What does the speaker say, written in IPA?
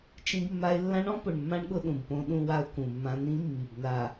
t͡ʃ ĩ˦ ɡ mː a˦ ɪ̯ lː ã˦ ɳ ɔ̃˦ p ʊ˨ ɳ mː ã˦ ɳ ɠ ʊ˦ ɗ ũ˨ b p õ˦ ɗ ũ˦ w a˦ ʊ̯ k ũ˨ mː ã˦ n̪ ĩ˦ mː i˨ b n a˨

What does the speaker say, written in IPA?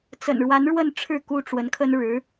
t͡s ə̰˨˩ n ɻ w a˧˥ n ɻ w ə˥˧ n ʈ͡ʂʰ ɻ̩˥˩ k u˥ ʈ͡ʂ w ə˧˥ n kʰ ə˥ n ɻ ɻ̩˧˥

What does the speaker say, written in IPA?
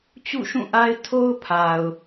t͡ɕ ṵ˦˨ ʃ ũ˦˨ ʔ a˦ ɪ̯ tʰ o˦ ʊ̯ pʰ a˨ ʊ̯

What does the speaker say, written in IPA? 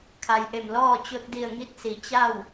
kʰ a˩ j ʔ e˧˩ m l ɔː˥˨ t͡ɕ o˧ t̚ d i˧˩ ə̯ ŋ i˧˥ t̚ s i˩ t͡ɕ a˥˨ w

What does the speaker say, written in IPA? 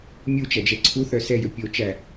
mʲ u t͡ʃ æ d͡ʒ ɛ ǀʰ u θ œ s ɛ j ɵ pʲ o t͡ʃ æ

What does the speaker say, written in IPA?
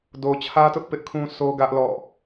d o˨ t͡ɕʰ ä˦ t ʊ˦ ʔ p ɪ˦ ʔ kʰ ũ˦ sʰ o˦ ɡ ä˦ ʔ l ɔ̰˦˨

